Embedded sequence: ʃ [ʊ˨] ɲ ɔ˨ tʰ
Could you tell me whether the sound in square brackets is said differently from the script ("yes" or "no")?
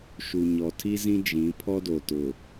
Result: yes